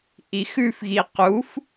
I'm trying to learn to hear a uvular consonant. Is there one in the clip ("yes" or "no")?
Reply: yes